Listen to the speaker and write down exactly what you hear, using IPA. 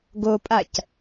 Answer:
ɡ o pʼ a c

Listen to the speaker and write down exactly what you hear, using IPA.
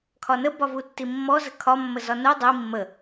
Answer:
kʰ ɒ n ə b ɒ v u tː i mː ɔ z ə kʰ ɒ mː ə z ɒ n u dˤ i mː ə

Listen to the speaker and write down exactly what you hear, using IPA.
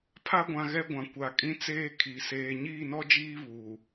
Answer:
pʰ a˦ ɡʷ ã˨ ɣ ɛ˦ ɡʷ ã˨ kʷ a˨ kʼ ĩ˦ t͡s eː˦ kʰ i˨˦ s eː˦ ɲ iː˦˨ n ɔ˦ d͡ʒ iː˦ β uː˨

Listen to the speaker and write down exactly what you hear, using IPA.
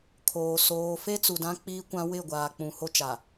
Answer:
kʰ oː˨ s oː˨ f e˦ t͡s u˨ d ã˦ k͡p iː˦ kʷ ã˦ w ɪ˦˨ ɡʷ aː˨ k͡p ũ˨ h o˦ t͡ʃ a˨

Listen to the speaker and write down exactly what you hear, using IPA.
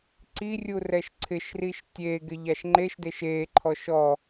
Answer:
ǀ i rʲ u r ɛ ʃ ǀʰ ɪ ʃ r i ʃ tʲ e ɡ ɪ ʎ a ʃ ŋ͡ǃ e ʃ d e ʃ e ǃʰ ɔ ʃ ɔ

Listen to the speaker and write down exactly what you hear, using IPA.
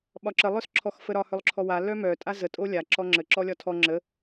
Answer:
ɓ ɒ ǁ ə lˠ œ s ǁʰ ɔ x f ə ɾ ɒ h œ lˠ ǁʰ ɔ w a l œ m œ tʼ a z ə tʼ o lʲ a ǁ ɔ ŋ͡ǁ ə ǁ ɔ lʲ ɒ tʰ ɔ ŋ͡ǁ ə

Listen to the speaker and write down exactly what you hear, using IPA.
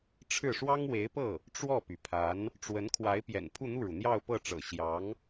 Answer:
ʈ͡ʂʰ ɻ̩˥˩ ʂ w ɑ˥ ŋ w e˧˥ ɪ̯ p ɤ˥˩ | ʈ͡ʂ w ɔ˥˩ p y˩ pʰ a˧˥ n | ʈ͡ʂ w ə˧˥ n kʰ w a˧˥ ɪ̯ p j ɛ̰˨˩ n pʰ u˥˧ n̪ u˥˩ ɻ u˩ n̪ j ɑ˥˧ ʊ̯ p ɤ˥˩ ʈ͡ʂ ɤ̰˨˩ ɕ j ɑ˧˥ ŋ

